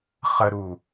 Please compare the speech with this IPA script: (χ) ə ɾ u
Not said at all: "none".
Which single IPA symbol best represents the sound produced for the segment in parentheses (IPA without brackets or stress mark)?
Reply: χ